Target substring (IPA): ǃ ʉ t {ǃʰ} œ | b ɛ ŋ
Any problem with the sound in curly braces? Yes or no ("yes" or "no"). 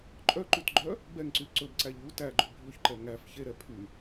yes